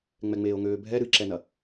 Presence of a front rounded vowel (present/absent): present